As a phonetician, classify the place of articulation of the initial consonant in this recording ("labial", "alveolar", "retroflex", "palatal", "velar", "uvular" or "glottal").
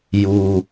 palatal